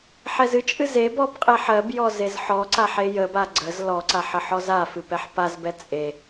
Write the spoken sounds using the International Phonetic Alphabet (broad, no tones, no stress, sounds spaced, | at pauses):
ħ ɛ z ɨ t͡ʃʼ ɨ z e b ɔ b qʼ e ħ ɜ b j ɔ z e z ħ ɔ ǀ a ħ e j ə b a ɡ͡ǀ ə z l ɔ ǀ a ħ ə ħ ɔ z a f ɨ p ɛ ħ p a z b ɛ t͡sʼ e